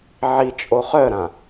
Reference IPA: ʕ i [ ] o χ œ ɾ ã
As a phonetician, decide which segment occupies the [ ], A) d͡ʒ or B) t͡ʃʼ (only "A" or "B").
B